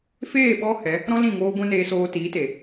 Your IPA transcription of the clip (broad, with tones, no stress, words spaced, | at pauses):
feː˦˨ɓɔ˧ hɛ˨˦ | ɾɔ̃˦lĩ˦˨ ŋoː˦ɡʷɛ̃˦ neː˧soː˧ tiː˨˦te˨